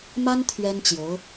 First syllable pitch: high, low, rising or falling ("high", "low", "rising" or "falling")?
high